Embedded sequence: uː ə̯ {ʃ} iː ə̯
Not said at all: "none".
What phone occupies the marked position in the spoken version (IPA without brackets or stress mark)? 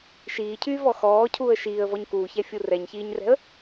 ʃ